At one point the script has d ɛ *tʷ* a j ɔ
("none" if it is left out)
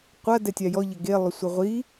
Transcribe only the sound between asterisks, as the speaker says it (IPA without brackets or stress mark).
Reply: tʲ